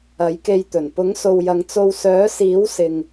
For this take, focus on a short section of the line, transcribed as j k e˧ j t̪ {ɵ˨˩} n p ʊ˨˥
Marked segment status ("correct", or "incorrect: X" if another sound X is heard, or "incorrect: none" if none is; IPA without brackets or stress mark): correct